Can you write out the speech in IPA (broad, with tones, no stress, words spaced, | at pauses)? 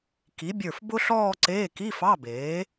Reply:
ki˩˥bʲə˞˧˩f bʊ˥ɬɔː˥˧ǀeː˧˥˧ ki˧˥˧fɑ˧˥˧beː˩˥